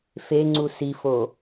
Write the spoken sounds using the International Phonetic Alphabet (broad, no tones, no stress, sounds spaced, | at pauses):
f e ŋ͡ǀ u s i f o